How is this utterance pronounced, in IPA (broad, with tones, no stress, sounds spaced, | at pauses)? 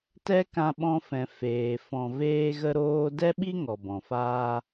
t ɛ˦ k ã˧ ɓ ɔ̃˧ f ɛ̃˨ f eː˨ f ɔ̃˨ v eː˧ ɣ ə˧ ɾ oː˧ d ɛ˦ ɓ i˦ ŋ ɔ˨ b ɔ̃˨ f aː˦